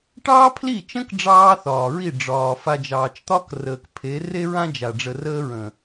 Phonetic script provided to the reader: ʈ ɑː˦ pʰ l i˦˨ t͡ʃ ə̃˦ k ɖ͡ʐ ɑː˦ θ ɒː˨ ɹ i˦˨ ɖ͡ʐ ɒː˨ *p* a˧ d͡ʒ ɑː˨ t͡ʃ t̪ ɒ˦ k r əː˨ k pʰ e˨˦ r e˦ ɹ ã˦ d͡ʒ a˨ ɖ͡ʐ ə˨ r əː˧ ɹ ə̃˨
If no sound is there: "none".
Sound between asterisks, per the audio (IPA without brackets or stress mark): f